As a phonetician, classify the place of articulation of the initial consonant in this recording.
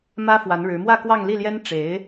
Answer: labial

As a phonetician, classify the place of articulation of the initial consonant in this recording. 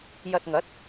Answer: palatal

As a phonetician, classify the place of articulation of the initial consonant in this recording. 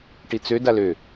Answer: retroflex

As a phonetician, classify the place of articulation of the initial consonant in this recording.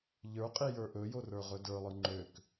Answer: palatal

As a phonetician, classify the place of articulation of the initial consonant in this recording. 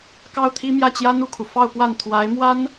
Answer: velar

